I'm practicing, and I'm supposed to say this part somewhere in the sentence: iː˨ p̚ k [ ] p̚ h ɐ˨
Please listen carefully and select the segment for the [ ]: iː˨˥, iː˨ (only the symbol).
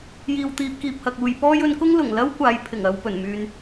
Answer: iː˨